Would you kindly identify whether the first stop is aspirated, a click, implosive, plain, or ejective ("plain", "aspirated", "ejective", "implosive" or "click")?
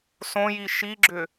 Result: click